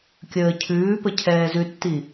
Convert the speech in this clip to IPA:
kʲ əː cʰ ʉː p ə cʰ ɛː z ʉ tː i

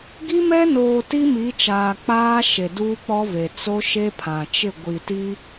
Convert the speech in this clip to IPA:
ɡ i˦ m ɛ˦ n oː˨ t i˦ m i˨˦ t͡ʃ aː˨ k͡p aː˦ ʃ e˨ d uː˦ k͡p ɔ˦ v e˨ t͡s o˦ ʃ e˦ pʰ ã˨ t͡ʃ ɪ˦˨ ɡʷ i˨ t i˦

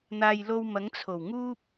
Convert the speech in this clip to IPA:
n̪ aː˨ j l o˧ w m ɐ˨˥ ŋ t͡sʰ o˨˩ w ŋ uː˥ p̚

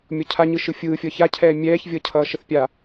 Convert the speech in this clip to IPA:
mʲ ɔ cʰ a ɲ ɯ ʃ ɯ fʲ ɯː fʲ ʌ ç a cʰ ɛː mʲ ɛː ç vʲ ʌ cʰ ʌː ʃ ə θ pʲ a

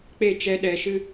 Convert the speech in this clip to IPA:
k͡p e˦˨ t͡ʃ ɛ˦ ɗ ɛ˧ ʃ ɨ˦

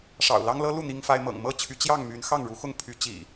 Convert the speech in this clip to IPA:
ʂ ɑ̰˨˩ ʊ̯ l ɑ˦ ŋ l ɤ˦ l u˥˨ n̪ i˦ ŋ f a˦ ɪ̯ m ɤ̰˨˩ ŋ m ɤ˥˨ t͡ɕʰ y˨˦ t͡ɕ j ɑ˥˨ ŋ m y˨˦ n x ɑ˥˨ ŋ ɻ u˨˦ x ʊ˥˨ ŋ pʰ y˨˦ t͡ɕ ḭ˨˩

